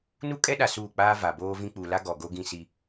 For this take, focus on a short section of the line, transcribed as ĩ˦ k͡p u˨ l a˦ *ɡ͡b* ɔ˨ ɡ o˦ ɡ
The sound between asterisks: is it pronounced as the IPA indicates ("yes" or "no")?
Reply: no